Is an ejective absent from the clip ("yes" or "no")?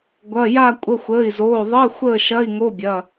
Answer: no